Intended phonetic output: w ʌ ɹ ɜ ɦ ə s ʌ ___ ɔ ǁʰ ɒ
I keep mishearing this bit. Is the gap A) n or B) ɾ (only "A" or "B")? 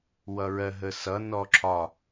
A